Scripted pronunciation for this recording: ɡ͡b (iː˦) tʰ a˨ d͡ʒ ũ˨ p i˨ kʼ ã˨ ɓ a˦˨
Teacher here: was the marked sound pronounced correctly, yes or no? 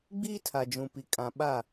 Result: yes